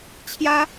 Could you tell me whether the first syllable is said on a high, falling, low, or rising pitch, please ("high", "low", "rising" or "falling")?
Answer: high